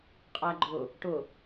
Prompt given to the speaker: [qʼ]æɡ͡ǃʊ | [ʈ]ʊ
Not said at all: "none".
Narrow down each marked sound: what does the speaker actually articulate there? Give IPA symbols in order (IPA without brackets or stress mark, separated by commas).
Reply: qʼ, ʈ